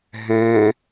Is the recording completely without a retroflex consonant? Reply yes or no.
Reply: yes